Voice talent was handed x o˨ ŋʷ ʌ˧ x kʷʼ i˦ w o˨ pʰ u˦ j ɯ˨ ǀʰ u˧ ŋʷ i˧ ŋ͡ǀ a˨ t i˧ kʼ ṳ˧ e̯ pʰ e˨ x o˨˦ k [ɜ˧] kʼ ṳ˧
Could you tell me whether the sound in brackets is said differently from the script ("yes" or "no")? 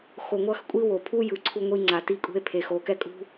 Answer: yes